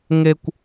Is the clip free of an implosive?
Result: yes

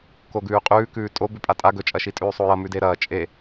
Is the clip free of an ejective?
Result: no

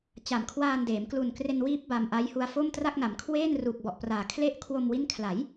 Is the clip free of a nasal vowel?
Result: yes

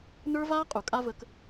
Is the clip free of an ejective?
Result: no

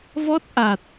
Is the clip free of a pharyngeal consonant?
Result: yes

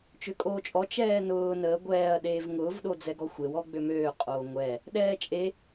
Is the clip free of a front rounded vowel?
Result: no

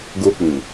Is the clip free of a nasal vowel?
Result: no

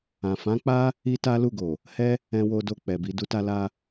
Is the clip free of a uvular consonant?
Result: yes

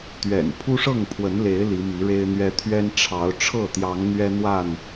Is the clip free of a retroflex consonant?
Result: no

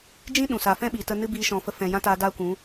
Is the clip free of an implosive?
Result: no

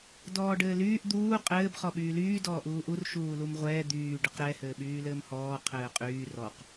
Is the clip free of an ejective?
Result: no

